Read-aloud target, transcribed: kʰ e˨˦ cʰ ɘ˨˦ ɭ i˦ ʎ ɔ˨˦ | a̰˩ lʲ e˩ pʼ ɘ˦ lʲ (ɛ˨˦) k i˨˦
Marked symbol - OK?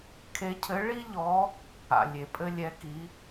yes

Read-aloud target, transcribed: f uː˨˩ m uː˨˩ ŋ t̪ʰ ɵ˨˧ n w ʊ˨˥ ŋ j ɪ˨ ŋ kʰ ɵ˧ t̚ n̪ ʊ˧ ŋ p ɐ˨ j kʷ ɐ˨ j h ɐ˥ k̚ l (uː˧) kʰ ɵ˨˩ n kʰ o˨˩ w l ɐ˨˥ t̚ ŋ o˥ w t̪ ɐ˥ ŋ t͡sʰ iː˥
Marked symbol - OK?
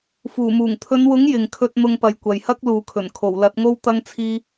no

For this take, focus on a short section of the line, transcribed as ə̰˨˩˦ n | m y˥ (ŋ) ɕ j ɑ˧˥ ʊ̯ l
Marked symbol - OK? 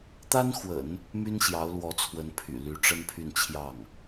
no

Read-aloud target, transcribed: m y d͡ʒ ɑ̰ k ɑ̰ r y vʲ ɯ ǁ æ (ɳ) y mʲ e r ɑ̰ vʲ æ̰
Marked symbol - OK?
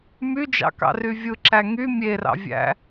no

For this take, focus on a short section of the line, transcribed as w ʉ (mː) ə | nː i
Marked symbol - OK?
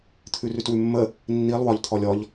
yes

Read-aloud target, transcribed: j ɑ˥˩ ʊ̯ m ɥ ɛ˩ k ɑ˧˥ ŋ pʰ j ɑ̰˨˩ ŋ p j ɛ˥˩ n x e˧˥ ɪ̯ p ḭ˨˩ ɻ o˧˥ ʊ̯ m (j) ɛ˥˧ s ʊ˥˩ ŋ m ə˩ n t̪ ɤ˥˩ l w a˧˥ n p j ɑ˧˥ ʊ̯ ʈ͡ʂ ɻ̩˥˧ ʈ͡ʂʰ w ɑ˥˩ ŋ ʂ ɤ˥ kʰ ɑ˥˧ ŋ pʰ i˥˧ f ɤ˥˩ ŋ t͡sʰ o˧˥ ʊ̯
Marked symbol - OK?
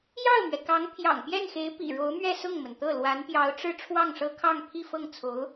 no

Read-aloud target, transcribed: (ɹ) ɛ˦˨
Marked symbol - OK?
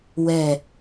no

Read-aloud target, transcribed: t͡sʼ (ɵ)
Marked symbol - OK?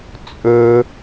yes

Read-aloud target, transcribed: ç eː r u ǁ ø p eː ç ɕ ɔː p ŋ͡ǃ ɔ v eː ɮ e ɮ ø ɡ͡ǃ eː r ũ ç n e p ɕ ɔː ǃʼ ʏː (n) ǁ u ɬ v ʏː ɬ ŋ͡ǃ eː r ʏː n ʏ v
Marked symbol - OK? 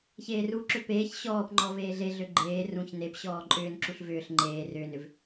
yes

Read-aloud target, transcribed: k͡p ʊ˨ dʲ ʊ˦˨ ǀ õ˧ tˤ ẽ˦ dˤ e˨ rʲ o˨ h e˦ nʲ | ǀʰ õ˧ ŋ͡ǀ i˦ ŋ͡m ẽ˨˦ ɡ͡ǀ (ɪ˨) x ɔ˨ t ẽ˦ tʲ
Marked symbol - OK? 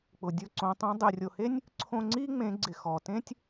yes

